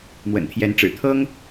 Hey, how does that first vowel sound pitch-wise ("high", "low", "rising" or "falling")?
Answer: low